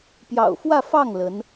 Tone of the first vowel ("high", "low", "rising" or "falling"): low